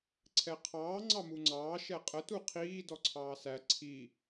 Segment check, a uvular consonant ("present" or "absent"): present